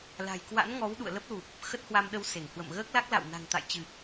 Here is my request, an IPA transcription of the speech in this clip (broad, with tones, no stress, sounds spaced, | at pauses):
l a̤˨˩ j k w a̰˧˥ n ŋ ɔ˨˦ w ɗ ṵ˧˨ ə̯ l ə˦˥ p̚ l u˨˩ p̚ | x ə˦˥ t̚ h w a˧ m ɗ ə˧ w s e˧˩ ŋ h w ə̰˧˨ m ɣ əː˦˥ k̚ l a˦˥ k̚ l a̰˧˨ w n a̤˨˩ ŋ t̪ a̰˧˨ j t͡ɕ ɨ˨˩ p̚